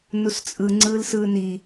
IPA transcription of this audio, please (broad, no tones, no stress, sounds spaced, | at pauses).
n u s t͡sʼ ɯ ŋ͡ǀ ɯː l s ɯː n i